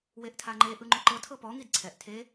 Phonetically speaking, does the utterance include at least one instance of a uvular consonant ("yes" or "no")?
no